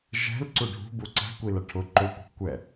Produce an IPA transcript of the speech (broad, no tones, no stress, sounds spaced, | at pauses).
ʒ ɛ̤ l ǀ u ɖʱ ṳ b u ǀ æ̤ kʷ i l ʌ ʈʰ ʊ ǃ ʊ kʷ ɛ̤ kʷ ɛ